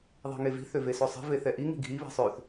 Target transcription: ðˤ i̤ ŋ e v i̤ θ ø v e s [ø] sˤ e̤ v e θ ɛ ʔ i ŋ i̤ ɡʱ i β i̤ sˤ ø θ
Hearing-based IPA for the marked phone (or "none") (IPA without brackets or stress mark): ø